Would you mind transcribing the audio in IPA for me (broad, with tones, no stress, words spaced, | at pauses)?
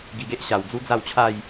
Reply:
ɡi˧ɡe˦ʔ ɕa˨˩w d͡zu˦d͡za˥˧wt͡ɕʰa˥˧j